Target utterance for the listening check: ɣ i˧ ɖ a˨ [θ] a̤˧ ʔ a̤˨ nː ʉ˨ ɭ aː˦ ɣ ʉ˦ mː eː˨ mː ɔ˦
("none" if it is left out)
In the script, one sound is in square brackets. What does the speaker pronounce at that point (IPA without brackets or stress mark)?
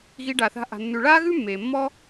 θ